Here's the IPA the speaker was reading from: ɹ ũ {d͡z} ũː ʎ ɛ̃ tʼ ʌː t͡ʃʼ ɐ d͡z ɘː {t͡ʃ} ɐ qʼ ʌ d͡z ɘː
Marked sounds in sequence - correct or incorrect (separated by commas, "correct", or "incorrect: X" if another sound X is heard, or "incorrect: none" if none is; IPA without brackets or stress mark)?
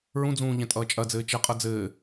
correct, correct